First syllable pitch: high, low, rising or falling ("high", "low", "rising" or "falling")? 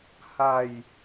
falling